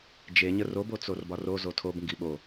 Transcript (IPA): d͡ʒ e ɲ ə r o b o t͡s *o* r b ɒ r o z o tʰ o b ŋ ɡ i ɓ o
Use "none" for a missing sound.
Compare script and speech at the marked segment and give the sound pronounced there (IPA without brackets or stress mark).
o